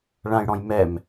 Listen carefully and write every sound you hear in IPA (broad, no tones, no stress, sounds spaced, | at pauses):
ɭ ã j ɽ ɔ̃ j m ɛ m